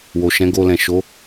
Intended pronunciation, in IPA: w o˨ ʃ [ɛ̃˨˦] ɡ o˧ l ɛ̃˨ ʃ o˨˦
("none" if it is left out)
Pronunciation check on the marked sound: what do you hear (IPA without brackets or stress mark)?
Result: ɛ̃˨˦